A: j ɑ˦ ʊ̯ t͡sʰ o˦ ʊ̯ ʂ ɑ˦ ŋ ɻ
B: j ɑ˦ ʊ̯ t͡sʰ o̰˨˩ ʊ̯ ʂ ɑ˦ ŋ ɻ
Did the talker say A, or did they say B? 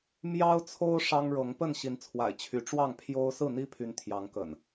A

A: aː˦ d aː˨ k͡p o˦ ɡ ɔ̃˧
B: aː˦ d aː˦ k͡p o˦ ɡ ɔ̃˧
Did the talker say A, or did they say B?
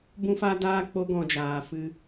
B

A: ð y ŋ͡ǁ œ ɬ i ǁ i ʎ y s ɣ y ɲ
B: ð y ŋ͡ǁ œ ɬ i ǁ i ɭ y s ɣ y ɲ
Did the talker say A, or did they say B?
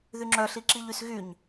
A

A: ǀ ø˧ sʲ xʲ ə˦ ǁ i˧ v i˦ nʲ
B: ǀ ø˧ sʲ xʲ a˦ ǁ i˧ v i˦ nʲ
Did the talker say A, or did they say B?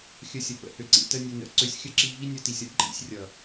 A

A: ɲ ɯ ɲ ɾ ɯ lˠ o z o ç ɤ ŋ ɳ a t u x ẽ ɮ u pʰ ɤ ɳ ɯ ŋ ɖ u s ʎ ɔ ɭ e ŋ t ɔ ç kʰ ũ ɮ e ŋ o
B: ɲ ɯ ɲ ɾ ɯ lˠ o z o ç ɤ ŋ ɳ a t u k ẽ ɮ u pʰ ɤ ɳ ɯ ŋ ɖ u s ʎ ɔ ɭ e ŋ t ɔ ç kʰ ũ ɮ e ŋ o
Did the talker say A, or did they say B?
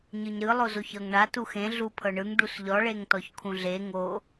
A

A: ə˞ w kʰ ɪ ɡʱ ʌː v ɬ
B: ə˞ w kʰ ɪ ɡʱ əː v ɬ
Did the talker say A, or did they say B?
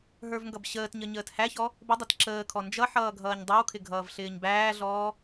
A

